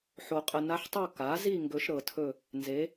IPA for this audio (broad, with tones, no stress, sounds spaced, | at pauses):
ħ o˨ qʼ ə˨ n a˧˥ ħ tˤ o˥˧ k a˩˥ z i˥˧ ŋ ɡ ɵ˧˥ ʃ ɾ ɤ˨ tʰ ɵ˥˧ | n z e˩˥